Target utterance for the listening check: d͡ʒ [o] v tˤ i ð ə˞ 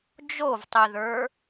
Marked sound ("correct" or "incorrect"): correct